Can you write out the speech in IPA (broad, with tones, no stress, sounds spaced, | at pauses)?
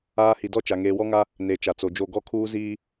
aː˦ h i˨ d ɔ˦ t͡ʃ a˨ ŋ eː˨ w ɔ˦ ŋ a˦ | n e˨ t͡ʃ a˨ t͡s o˨ d͡ʒ o˦˨ ɡ ɔ˦ kʰ uː˦ z iː˦